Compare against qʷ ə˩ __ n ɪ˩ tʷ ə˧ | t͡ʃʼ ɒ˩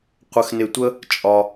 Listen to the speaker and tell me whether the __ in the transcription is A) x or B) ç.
A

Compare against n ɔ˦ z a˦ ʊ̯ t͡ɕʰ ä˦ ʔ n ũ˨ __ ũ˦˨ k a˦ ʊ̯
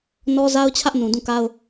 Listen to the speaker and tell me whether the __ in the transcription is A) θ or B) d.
B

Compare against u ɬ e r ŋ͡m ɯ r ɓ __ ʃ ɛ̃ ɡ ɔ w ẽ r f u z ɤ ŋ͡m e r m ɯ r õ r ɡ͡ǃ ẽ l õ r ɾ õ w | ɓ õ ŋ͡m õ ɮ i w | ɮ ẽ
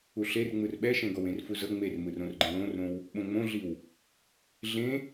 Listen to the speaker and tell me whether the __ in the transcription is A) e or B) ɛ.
B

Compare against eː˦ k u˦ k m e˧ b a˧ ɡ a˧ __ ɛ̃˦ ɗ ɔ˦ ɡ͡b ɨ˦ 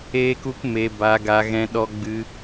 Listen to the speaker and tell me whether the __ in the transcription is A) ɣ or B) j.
A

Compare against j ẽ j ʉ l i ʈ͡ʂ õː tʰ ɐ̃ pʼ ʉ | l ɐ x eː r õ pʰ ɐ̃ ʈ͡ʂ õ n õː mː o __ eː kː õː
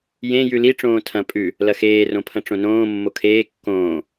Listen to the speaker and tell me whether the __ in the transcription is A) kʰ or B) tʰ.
A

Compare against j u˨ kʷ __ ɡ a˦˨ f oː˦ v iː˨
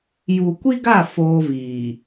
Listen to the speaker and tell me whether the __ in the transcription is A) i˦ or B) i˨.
A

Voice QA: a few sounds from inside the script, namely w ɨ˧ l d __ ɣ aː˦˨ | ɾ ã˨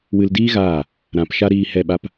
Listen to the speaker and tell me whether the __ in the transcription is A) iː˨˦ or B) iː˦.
B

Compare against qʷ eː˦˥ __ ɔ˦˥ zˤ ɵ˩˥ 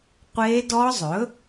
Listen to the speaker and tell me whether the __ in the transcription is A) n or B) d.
B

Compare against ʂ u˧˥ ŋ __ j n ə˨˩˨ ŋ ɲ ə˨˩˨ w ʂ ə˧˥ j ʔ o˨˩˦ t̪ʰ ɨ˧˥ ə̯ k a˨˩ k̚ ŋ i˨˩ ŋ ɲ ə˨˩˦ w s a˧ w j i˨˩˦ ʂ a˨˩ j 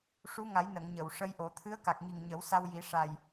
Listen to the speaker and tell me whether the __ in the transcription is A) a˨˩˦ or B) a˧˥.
A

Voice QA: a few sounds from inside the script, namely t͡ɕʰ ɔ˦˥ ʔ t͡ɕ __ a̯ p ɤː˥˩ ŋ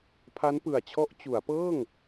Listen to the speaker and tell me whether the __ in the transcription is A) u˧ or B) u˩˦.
B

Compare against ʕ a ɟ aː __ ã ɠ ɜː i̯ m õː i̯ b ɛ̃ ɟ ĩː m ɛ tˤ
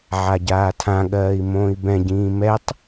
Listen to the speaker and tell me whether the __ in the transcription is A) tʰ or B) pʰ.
A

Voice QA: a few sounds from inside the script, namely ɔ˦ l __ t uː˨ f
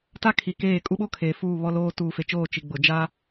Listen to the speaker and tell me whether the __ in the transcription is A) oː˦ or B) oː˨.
A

